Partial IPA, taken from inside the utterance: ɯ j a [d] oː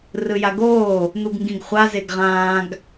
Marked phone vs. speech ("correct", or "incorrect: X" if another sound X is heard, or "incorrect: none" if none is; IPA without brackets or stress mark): incorrect: ɡ